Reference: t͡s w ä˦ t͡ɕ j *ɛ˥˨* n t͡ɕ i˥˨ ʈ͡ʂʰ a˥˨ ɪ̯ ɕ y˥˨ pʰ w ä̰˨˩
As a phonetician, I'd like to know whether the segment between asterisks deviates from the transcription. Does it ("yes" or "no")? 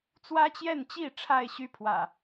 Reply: no